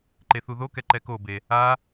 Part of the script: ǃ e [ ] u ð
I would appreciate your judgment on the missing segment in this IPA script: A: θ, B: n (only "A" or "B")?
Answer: A